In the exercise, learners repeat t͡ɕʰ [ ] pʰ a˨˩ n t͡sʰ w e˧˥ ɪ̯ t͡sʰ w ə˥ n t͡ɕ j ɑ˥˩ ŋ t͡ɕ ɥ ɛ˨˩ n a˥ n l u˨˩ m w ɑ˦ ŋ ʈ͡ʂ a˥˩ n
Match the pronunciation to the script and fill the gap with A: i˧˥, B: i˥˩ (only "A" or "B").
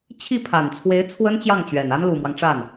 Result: B